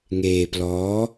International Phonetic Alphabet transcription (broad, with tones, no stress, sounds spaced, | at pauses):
ŋ eː˧ p l ɔː˦˥